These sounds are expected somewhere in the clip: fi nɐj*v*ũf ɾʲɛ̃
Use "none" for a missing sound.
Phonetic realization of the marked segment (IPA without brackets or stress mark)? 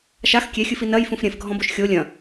f